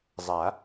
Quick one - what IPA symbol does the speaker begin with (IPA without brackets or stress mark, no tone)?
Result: zˤ